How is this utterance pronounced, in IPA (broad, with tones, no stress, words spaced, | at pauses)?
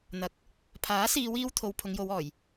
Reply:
n̪ɐ˨˥k̚ | pʰaː˨˥siː˨˧wiː˧w t̪ʰo˨w pʰʊ˨˧ŋjo˨˧wɔː˨˩j